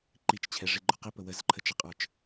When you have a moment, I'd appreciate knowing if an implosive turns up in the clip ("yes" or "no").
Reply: no